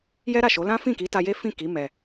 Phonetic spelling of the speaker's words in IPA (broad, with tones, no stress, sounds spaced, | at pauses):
j ɛ˦ ɾ a˦˨ ʃ o˨˦ l ã˦ f ĩ˦˨ k i˨˦ t a˧ j e˦ f ĩ˦˨ k i˨˦ m ɛ˧